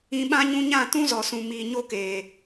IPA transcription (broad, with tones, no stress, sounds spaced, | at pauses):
ĩ˧ ɓ ã˦ ɲ ũ˦ ɲ ã˦˨ t ũ˦ z ɔ˨ s ũ˨ m i˨ ɲ o˦ k eː˨